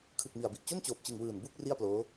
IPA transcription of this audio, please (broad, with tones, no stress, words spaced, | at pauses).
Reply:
kʰɯ˨˩k̚mi˨˩a̯bi˨˩ʔ t͡ɕo˥˩nt͡ɕoː˨˩p̚t͡ɕɯ˨˩ŋ wɯː˨˩nbu˥˩k̚ ri˥˩a̯ploː˦˥